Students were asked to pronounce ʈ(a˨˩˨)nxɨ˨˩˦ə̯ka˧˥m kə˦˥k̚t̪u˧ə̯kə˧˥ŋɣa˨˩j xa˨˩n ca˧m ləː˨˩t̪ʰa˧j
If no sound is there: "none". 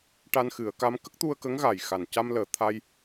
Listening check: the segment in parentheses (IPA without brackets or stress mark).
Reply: a˧